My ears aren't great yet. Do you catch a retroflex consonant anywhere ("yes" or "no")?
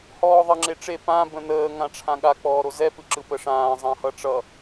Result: yes